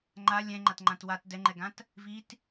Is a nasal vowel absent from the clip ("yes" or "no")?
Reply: no